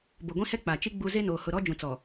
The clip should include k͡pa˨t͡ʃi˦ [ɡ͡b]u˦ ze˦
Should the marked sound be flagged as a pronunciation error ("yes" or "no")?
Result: no